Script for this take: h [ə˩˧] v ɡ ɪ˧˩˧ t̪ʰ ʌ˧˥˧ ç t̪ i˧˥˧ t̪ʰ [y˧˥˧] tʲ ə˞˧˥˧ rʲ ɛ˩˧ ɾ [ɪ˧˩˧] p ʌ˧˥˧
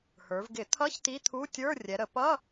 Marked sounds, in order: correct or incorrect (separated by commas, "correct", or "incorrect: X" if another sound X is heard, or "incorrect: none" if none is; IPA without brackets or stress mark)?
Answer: incorrect: ə˞˩˧, incorrect: u˧˥˧, incorrect: ə˧˩˧